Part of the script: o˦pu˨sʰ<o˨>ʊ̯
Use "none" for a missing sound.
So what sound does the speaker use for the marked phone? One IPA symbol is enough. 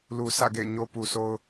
o˦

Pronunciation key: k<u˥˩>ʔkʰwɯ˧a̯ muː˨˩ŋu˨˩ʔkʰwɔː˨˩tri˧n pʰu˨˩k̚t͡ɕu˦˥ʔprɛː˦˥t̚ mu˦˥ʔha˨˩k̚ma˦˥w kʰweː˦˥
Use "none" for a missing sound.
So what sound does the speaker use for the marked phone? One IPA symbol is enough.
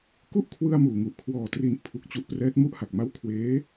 u˥˩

